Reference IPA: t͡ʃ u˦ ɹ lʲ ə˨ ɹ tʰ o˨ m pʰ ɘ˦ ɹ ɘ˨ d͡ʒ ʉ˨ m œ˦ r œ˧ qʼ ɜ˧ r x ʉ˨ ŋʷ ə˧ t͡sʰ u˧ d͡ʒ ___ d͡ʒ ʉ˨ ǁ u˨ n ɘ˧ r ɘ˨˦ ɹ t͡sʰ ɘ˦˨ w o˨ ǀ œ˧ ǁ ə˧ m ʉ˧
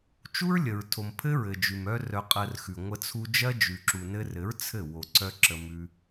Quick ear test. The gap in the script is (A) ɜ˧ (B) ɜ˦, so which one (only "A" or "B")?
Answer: B